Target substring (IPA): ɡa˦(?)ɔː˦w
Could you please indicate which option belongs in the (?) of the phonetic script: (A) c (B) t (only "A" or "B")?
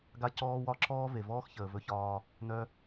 A